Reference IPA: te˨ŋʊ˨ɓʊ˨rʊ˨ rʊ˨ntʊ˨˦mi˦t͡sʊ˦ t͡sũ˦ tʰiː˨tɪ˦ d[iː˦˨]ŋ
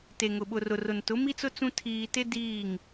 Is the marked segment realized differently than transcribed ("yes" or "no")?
no